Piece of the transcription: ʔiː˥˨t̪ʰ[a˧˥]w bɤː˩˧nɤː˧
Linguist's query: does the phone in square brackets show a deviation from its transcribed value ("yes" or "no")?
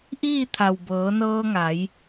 yes